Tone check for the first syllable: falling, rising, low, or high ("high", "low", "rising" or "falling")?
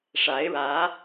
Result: rising